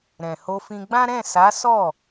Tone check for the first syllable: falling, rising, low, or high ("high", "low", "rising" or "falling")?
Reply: low